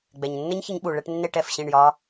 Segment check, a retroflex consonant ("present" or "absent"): present